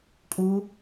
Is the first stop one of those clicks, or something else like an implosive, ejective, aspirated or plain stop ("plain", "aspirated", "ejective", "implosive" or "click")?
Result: ejective